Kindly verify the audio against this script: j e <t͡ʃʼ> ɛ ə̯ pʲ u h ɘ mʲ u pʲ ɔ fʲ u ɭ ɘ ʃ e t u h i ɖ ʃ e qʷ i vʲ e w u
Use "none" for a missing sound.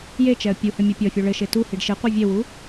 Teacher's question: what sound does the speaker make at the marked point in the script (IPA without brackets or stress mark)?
t͡ʃ